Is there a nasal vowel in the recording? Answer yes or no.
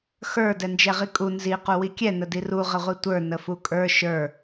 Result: no